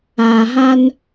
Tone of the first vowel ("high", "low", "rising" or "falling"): low